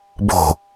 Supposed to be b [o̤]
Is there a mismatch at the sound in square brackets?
no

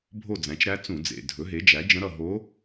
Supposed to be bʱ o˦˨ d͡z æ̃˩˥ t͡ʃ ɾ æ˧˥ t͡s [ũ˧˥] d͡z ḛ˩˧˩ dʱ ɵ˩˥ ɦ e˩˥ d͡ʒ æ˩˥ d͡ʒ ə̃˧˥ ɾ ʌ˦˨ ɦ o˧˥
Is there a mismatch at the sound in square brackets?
yes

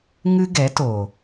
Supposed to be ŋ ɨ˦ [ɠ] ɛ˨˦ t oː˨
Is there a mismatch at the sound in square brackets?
yes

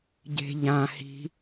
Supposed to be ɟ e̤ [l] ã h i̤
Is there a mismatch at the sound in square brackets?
yes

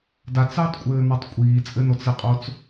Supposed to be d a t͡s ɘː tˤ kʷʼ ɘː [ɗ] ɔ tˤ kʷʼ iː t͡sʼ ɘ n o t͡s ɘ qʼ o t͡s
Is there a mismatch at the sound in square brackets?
yes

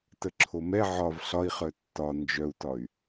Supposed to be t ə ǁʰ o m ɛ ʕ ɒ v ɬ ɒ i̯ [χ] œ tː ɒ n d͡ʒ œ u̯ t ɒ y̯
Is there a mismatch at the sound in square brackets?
no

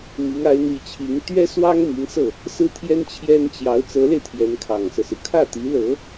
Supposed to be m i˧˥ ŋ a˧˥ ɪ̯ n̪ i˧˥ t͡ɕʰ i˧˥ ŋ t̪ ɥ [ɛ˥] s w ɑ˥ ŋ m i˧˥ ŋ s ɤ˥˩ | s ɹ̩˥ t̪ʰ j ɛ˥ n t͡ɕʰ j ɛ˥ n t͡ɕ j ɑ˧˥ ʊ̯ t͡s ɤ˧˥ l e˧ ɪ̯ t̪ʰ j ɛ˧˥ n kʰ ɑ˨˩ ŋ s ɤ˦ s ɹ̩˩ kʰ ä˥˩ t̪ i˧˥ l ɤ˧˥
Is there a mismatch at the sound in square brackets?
no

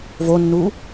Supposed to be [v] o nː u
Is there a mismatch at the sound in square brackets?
no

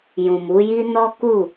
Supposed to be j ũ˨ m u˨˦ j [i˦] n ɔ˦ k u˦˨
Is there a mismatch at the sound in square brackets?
no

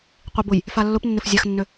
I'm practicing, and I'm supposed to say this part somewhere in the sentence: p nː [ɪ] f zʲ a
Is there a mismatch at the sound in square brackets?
no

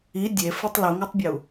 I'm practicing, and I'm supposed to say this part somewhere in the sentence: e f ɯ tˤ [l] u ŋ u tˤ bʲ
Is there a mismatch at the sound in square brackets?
no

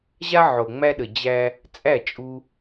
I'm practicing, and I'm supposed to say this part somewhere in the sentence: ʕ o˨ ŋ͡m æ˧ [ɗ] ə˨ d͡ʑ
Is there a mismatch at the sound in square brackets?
no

